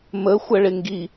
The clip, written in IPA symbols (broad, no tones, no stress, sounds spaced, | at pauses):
m ə xʷ ə ɭ ɪ ŋ ɡ i